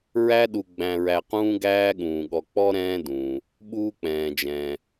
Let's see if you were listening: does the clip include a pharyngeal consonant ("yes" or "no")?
no